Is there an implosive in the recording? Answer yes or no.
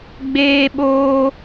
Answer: yes